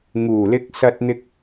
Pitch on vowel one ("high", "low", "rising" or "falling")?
low